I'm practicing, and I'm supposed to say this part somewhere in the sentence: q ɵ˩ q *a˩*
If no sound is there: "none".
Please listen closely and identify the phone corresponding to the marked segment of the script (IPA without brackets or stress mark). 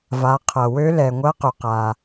a˩